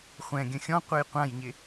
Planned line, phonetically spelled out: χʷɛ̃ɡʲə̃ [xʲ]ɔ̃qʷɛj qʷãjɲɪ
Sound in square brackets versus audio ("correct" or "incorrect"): correct